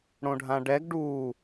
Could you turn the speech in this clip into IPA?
ɽ õ ɖʱ ã ɖ ɛ ɡ ɖ u

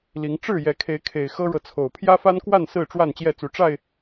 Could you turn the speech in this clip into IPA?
l i˨˦ ŋ ʈ͡ʂ ɻ̩˥˨ j ɛ˨˦ kʰ e˨˦ ɪ̯ kʰ e˨˩ ɪ̯ x ɤ˦ ɻ ɤ˨ t͡sʰ o˨˩ ʊ̯ pʰ j ä˦ f a˦ n k w a˥˨ n s ɹ̩˥˨ ʈ͡ʂ w a˥˨ n t͡ɕ j ɛ˥˨ t͡s u˨˦ ʈ͡ʂ a˥˨ ɪ̯

